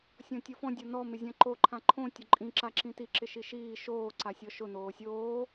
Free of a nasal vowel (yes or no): no